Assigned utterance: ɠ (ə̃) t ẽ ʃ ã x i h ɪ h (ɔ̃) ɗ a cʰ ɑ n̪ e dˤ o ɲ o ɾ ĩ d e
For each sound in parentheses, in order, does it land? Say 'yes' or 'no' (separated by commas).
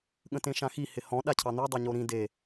yes, yes